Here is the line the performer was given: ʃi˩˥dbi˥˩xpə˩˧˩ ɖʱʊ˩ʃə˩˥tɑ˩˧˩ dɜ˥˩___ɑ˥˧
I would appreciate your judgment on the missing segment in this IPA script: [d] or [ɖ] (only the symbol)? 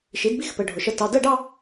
ɖ